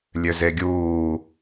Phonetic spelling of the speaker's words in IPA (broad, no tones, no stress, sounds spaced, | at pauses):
lʲ ø z e ɡʲ uː